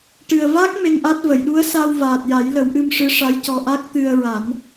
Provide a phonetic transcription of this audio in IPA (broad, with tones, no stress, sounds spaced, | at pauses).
ʈ ɨ˨˩ ə̯ v a˦˥ k̚ m e˧ ŋ ʔ a˦˥ t̚ v ə˨˩˨ j ɗ u˧˥ ə̯ s a˧ w v aː˨˩ t̚ j a˨˩˦ j l ə˨˩˦ w ʔ ɨ˧ m ʂ ɨ˧˥ ʂ a˧˥ j c ɔ˧ ʔ a˦˥ k̚ t̪ ɨ˧ ə̯ ɹ a˨˩˦ n